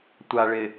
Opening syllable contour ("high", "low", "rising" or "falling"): low